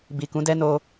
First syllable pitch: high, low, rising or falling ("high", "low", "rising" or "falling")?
low